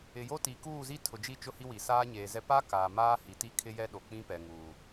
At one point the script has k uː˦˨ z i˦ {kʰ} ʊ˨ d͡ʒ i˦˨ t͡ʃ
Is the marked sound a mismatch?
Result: yes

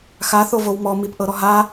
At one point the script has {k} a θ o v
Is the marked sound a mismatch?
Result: yes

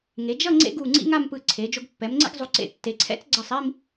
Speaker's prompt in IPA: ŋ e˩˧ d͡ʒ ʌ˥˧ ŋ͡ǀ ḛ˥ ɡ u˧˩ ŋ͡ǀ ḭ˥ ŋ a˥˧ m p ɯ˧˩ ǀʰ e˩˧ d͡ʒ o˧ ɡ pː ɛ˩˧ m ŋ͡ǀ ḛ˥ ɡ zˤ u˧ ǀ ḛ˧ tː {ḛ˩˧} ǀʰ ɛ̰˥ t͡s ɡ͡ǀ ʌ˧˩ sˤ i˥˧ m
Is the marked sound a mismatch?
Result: yes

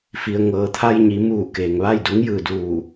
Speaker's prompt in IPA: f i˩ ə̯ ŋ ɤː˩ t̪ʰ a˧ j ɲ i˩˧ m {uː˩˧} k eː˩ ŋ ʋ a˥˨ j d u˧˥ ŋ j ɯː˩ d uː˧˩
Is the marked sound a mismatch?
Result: yes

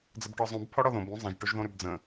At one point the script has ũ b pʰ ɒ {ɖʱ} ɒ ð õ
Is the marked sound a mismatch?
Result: yes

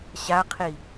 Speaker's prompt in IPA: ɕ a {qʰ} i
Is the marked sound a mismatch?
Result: no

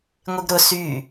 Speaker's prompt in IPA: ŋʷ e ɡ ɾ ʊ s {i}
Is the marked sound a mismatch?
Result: yes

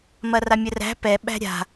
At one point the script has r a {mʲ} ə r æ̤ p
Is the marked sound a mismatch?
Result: no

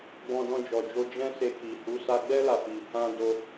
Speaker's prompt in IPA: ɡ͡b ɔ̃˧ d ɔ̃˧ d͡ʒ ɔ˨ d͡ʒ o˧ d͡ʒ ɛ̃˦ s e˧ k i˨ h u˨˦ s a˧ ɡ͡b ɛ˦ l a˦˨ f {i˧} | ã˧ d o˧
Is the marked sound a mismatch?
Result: no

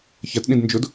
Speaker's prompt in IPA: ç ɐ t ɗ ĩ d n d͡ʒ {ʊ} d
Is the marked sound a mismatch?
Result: no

